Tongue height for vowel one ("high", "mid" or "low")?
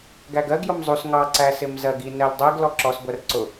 low